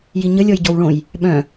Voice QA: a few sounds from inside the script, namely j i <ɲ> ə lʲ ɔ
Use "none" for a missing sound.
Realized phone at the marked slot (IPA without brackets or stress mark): ɲ